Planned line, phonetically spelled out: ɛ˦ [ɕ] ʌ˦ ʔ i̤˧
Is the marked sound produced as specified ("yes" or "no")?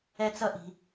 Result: no